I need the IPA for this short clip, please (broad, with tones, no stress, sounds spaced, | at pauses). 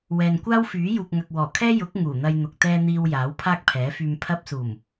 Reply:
w ɛː˨ n kʷ aː˥ w f yː˨˥ j uː˨ k̚ ŋ ɐ˨ k̚ w ɔː˨˩ kʰ ɛː˥ j ʊ˨˥ k̚ ŋ uː˨˩ n̪ ɐ˧ j n̪ ʊ˨ k̚ t̪ ɛː˧ n̪ iː˨ w j aː˨˥ w pʰ aː˥ k̚ pʰ ɛː˨˥ f yː˧ m pʰ ɐ˧ p̚ s uː˨˩ m